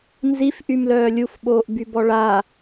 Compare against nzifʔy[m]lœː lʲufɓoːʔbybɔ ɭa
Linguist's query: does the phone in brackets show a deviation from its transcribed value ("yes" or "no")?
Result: no